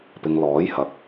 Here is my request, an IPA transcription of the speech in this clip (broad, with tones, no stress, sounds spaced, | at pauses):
p ɪ˨ ŋ l ɔː˨˥ j h ɐ˨ k̚